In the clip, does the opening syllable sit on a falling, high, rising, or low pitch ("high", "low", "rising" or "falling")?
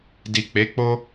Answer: low